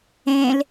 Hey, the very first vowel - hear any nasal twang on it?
yes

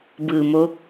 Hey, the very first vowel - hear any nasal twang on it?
no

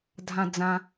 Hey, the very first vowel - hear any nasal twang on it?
yes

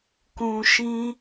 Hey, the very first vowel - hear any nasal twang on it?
yes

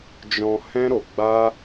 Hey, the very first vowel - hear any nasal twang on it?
yes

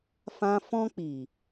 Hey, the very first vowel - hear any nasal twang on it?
yes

